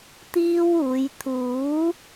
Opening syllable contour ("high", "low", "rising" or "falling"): high